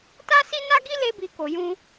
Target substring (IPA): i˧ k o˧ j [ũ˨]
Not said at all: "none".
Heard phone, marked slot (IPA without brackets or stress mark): ũ˦